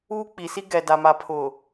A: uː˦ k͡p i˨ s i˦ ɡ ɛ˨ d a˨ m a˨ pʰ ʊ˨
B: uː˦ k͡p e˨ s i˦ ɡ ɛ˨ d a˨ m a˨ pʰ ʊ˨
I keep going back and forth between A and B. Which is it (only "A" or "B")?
A